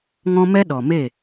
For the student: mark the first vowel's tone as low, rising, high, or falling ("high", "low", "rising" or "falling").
high